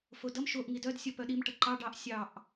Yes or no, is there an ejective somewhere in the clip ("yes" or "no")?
no